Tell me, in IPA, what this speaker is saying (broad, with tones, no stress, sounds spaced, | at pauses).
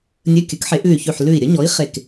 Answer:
nʲ ɵ˧˥˧ kʲ ɵ˨˥ k ħ e˨˥ ʔ ʉ˧˩ y̯ ç ʉ˧˩ ħ l ʉ˧˩ i̯ ɾʲ ə˨˥ ɲ ɔ˨˥ i̯ χ e˧˩ k